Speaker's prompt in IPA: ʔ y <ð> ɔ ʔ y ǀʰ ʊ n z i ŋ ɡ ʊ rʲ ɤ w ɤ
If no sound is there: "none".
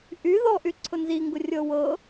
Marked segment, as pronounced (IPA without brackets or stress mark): ð